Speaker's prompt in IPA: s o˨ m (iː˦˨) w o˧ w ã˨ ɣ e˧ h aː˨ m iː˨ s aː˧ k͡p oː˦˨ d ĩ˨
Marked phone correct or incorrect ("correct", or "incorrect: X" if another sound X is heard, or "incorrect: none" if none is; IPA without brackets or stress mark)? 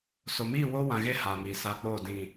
correct